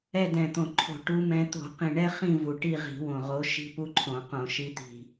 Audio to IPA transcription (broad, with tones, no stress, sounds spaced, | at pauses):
ɛ˦˨ d ɛ̃˨˩ t̪ õ˨˩ ǃʰ o̤˧˩˧ ʈ u˨˦ m ɛ̃˨˦ t̪ o̤˧˩˧ q ĩ˨˩ ɳ ɛ˦ χ ĩ˦˨ v u˨˩ ʈ i˦˨ ʁ i̤˧˩˧ w õ˨˩ ʁ o˨˦ ʃ i̤˦ p u˦ ǃʰ õ˧˩˧ q õ˧˩˧ ʃ i˦ t̪ i̤˦˨